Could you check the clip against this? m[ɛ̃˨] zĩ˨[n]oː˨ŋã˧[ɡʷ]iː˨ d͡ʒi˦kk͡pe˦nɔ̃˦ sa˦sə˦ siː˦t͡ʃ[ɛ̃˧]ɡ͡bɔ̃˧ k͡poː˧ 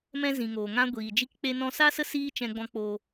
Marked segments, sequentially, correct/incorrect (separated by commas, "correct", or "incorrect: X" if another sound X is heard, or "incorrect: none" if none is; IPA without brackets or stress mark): incorrect: ɛ̃˧, incorrect: ŋ, correct, correct